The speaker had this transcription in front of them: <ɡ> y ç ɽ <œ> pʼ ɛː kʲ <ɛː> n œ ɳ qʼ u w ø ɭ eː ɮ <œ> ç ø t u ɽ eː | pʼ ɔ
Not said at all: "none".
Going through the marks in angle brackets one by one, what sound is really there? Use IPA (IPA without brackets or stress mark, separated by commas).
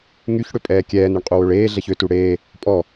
ŋ, ø, ɛː, ɛ